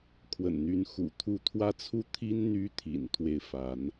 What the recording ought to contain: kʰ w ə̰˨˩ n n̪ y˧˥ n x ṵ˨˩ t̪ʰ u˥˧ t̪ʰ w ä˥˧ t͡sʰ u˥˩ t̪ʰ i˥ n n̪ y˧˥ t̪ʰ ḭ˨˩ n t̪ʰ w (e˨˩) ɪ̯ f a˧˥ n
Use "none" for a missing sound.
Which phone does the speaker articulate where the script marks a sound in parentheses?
e˥˩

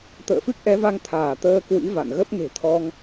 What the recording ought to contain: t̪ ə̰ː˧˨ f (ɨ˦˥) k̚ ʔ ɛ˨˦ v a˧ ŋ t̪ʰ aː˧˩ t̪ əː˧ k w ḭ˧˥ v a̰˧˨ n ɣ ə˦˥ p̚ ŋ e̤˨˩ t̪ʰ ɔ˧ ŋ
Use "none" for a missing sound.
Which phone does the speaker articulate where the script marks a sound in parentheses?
ɨ˦˥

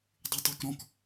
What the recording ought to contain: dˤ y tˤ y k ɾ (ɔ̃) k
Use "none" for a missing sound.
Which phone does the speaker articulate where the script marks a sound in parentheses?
ɔ̃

